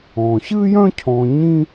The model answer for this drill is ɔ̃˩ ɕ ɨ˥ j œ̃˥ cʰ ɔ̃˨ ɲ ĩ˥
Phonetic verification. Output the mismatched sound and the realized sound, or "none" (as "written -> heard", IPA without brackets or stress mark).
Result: none